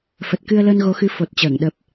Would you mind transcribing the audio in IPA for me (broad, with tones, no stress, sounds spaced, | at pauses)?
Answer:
f ə˨˩ t̚ k ɨ˧ ə̯ l əː˧ n ɣ o˨˦ x ɨ˨˦ f o˨˩ t̚ t͡ɕ əː˧˩ ŋ ɗ ə˨˩ p̚